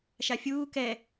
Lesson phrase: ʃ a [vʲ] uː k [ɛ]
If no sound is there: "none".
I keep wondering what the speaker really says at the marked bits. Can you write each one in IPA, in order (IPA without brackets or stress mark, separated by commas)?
fʲ, ɛ